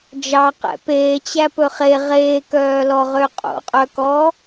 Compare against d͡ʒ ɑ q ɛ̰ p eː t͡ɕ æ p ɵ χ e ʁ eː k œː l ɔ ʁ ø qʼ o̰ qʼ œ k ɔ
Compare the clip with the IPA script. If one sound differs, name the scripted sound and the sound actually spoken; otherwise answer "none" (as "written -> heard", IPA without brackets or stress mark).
none